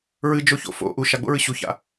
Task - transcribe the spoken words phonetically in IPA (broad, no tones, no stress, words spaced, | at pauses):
ɹɨd͡ʒoço̰ fo̰ ʔu ʃaɡ͡bo̰ɹɨ ɕuça̰